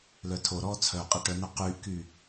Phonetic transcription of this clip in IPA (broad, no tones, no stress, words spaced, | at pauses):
lœtʰo ɾɔːt͡sʰœ qʼɛʈœnœ qyːʔkyː